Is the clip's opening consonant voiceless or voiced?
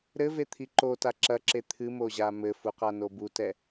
voiced